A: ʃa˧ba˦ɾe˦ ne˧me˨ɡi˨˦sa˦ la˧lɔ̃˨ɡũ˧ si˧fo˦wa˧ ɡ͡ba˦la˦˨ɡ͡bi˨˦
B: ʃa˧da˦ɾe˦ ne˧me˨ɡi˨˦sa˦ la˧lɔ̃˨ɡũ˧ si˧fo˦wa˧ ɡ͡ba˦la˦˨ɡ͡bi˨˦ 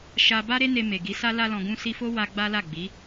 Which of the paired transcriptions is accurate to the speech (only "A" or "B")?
A